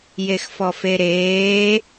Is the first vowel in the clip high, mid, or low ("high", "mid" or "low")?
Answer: mid